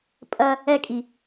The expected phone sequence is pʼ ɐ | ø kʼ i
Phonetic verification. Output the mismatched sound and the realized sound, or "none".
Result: ø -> ɛ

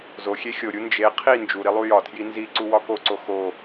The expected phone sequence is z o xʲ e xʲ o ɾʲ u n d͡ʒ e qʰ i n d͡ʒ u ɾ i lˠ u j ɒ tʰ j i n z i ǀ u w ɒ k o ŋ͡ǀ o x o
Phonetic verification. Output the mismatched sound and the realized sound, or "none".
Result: ŋ͡ǀ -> ǀ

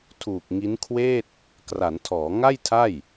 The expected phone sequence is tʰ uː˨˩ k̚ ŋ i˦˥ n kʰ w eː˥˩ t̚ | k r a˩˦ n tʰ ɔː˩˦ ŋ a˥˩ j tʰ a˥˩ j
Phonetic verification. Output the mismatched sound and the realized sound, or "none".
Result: none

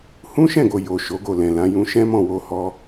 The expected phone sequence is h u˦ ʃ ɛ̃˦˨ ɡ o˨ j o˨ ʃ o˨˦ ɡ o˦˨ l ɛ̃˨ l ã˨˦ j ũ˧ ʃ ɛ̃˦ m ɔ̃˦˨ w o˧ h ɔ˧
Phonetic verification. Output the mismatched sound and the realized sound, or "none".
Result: u˦ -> ũ˦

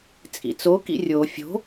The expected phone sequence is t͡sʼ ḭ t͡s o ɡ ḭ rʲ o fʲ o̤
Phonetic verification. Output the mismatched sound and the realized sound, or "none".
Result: ɡ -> k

